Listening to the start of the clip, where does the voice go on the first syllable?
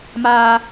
high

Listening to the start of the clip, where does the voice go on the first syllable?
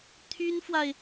high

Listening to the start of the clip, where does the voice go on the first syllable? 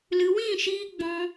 low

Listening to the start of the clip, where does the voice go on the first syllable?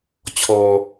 low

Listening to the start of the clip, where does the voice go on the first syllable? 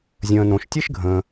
low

